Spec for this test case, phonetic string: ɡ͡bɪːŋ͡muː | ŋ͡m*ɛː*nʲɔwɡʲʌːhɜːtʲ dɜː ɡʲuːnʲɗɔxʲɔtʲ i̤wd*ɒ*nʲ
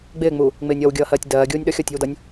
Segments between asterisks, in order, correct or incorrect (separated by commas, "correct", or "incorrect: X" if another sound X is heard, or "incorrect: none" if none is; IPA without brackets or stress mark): incorrect: ɪː, incorrect: ʌ